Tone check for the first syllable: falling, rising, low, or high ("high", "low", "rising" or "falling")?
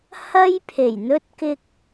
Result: high